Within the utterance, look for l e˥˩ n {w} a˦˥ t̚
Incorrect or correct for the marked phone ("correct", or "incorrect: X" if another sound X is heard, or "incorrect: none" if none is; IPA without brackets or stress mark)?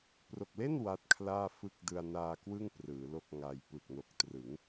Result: correct